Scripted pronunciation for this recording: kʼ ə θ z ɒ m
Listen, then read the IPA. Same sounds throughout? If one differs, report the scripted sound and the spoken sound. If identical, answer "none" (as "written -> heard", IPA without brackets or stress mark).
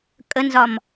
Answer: θ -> n